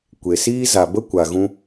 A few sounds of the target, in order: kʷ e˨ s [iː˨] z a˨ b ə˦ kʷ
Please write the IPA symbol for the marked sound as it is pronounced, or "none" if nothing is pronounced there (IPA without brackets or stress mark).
iː˦